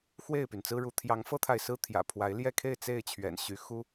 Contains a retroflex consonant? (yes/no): yes